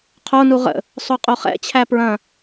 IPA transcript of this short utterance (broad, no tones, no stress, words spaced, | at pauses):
qʰonu ʁə̰ | sˤoqʼoχɛ̰t͡ɕʰæ pɹɐ̃